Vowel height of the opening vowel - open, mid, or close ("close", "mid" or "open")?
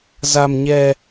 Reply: open